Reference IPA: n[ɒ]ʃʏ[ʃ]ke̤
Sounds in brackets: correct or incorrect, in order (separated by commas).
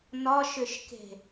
correct, correct